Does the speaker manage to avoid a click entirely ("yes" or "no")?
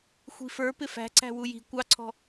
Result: no